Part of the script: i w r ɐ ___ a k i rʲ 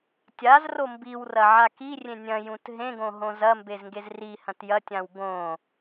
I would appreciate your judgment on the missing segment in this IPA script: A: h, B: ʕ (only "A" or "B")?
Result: B